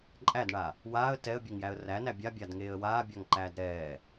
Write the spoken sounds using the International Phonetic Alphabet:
ǃʼ æ d ɳ a | w aː ə̯ t ɛ ə̯ bʲ e ŋ j æ ə̯ r æ n æ bʲ a bʲ a d ŋ eː ə̯ w aː bʲ a ŋ ǃ æː d ɾ ɛː

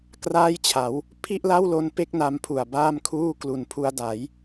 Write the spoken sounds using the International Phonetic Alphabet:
k r aː˥˩ j t͡ɕʰ a˩˦ w | pʰ i˥˩ ʔ l a˥˩ w l o˦˥ n p e˥˩ k̚ n a˧ m pʰ u˨˩ a̯ b aː˥˩ m kʰ uː˥˩ k l u˨˩ n pʰ u˧ a̯ d a˩˦ j

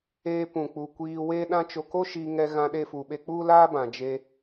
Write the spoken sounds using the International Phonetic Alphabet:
eː˧ p ũ˨ k͡p u˨ kʷ iː˧ w eː˦ ɗ ã˦ t͡ʃ o˧ k o˦ ʃ iː˧ ŋ ɛ˧ ɣ ã˧ ɗ e˧ f u˨ ɓ e˧ k͡p u˦ l aː˦ b ã˨ d͡ʒ e˧

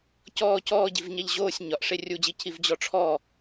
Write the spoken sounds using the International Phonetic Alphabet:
c ɔː c ɔː ɟ i v ɲ a ʎ ʑ oː sʲ ɲ ɒ ʔ ʂ e rʲ u d͡ʑ i cʰ i v d͡ʑ ɔ ʈ͡ʂʰ ɔː

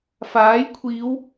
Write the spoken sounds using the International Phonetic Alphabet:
f aː˨˥ j kʷʰ iː˨˧ w

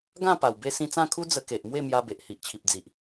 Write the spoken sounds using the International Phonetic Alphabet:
ɡ ã˥˧ p a˨˩ w b e˧ s ĩ˧ t͡s ã˥˧ kʰ u˦ d͡z ə˧ k e˨ ʔ m w e˥˧ m j a˧ b e˨ ʔ h i˨ ʔ t͡ɕʰ i˨ p̚ d͡z i˨ ʔ

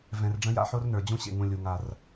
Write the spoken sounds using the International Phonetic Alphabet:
v ɛ̃˨ r ɖ͡ʐ ə̃˦ j a̰˦ ħ o˦ r n ə˞˨ d͡ʑ ũ˦ ɕ ḛ˨ ŋ ũ˨ lʲ u˨ ŋ a˨ r

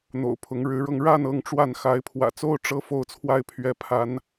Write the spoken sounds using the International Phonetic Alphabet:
n̪ o̰˨˩ ʊ̯ pʰ ʊ˨˦ ŋ ɻ ɻ̩˨˦ ɻ ɤ˧ ŋ ɻ a˥˨ n ɤ˦ ŋ ʈ͡ʂ w a˥˨ n x a˨˦ ɪ̯ pʰ w ä̰˨˩ t͡s o˦ ʊ̯ ʈ͡ʂ ɤ˦ f o˦ ʊ̯ t͡sʰ w a˥˨ ɪ̯ pʰ ɥ ɛ˨˦ pʰ a˨˦ n

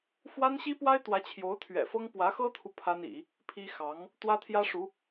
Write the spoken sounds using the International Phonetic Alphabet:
f w a˥ n ɕ i˥ p w a˥ ɪ̯ t̪ w ä˧˥ t͡ɕʰ j o˧˥ ʊ̯ t̪ʰ ɥ ɛ̰˨˩ f ɤ˥ ŋ p w ä˧˥ x ɤ˥ t̪ʰ u˨ pʰ a˥ n ḭ˨˩˦ | pʰ i˥ x ɑ˧˥ ŋ | t̪ w ä˥ t̪ʰ j ä˥ ʂ u˧˥

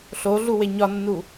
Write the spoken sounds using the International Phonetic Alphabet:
ɬ o ɮ u w e ɲ ɒ nː u

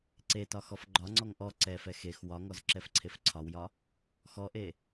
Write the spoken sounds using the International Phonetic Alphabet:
ǀ e t ɒ x ɔ f ɡ͡ǃ ɒ ŋ͡ǀ ɔ ŋ ʔ ɔ ǀ ɛ f ɛ x e x w ɒ ŋ ɔ z ǁ ɛ f ǀʰ e f ǀʰ ɒ w j ɒ | x ɔ ʔ e

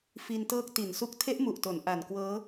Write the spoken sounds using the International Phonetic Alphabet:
f i˧ n t ɤː˦˥ k̚ t i˨˩ n s u˦˥ k̚ tʰ e˦˥ ʔ m u˨˩ ʔ t o˩˦ n ʔ a˨˩ n k w ɤː˦˥

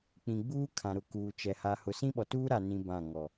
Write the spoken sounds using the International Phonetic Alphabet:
k͡p ĩ˨ ɡ͡b uː˦ kʰ ã˨ ɾ ʊ˨ k uː˨ t͡ʃ ɛ˨ h a˨ h ʊ˨ s ĩ˦ ɓ ɔ˨ t uː˦ ɾ a˨ n ĩ˦ b ã˦˨ ŋ ɔ˨

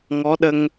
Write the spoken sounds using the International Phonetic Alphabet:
ŋ ɔ˧˥ ɗ ə˧ ŋ

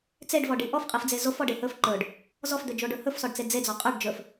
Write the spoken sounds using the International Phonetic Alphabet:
t͡s e ɖ v ɔ ɖ i ʔ ɔ f qʼ i f d͡z e z o f ɔ ɖ e h ɵ f ǃ ɵ ɖ | z ɔ f d̪ ɵ d͡ʒ o ɖ ɵ h ɵ f s ɔ ɖ t͡s e d͡z e d͡z ɔ qʼ ɵ ɖ d͡ʒ ɵ f

